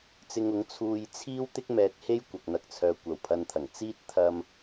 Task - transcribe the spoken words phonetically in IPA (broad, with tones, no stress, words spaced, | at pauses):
t͡sɪ˧ŋʊ˨˥ŋ t͡sʰuː˧j t͡sʰiː˥wt̪ɪ˥k̚ mɛː˨t̚ he˥j kʷɐ˨k̚n̪ɐ˧k̚t͡sʰœː˨ kʷɐ˨˩wpʰɐ˨nt̪ʰɐ˨˩ŋ t͡siː˥t̚ t̪ʰɐ˧m